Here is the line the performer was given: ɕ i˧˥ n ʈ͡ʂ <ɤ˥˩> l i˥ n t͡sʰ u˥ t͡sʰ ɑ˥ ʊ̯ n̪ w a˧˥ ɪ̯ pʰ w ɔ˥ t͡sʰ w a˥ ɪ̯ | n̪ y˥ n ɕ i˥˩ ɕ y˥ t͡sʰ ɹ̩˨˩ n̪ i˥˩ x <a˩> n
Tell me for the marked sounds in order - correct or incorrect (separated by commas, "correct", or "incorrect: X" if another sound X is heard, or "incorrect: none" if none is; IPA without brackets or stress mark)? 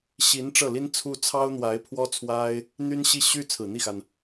correct, correct